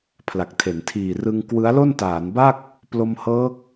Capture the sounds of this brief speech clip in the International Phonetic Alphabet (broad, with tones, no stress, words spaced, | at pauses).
pʰla˨˩k̚tʰe˩˦n tʰiː˨˩rɯ˧ŋ kwɯ˦˥a̯lo˥˩ntaː˩˦nba˥˩k̚ | plo˧mhɤː˦˥k̚